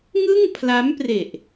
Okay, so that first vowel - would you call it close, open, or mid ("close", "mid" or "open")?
close